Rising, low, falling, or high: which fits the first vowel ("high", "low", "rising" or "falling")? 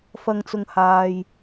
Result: low